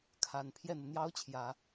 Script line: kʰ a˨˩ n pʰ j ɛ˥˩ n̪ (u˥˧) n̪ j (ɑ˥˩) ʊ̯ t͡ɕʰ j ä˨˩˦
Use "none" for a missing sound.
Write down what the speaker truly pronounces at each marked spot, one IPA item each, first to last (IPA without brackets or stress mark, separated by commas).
u˩, ɑ˥